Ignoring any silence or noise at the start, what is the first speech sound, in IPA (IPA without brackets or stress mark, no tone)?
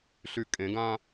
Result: ɬ